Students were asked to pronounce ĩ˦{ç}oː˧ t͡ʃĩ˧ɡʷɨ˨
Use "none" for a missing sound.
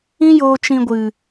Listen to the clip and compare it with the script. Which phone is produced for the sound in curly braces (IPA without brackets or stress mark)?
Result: j